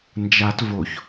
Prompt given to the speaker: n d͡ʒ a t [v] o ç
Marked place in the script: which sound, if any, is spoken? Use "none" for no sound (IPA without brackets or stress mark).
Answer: v